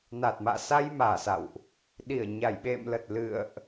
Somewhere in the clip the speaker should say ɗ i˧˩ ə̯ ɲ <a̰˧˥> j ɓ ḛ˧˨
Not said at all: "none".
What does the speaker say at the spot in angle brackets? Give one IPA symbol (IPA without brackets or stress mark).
a˧˩